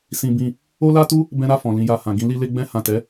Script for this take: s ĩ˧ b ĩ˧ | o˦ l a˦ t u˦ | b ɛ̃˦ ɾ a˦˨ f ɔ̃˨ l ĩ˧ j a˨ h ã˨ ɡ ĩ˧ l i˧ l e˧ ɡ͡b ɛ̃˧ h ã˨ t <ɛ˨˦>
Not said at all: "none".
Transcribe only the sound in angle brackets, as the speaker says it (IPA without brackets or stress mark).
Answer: ɛ˨˦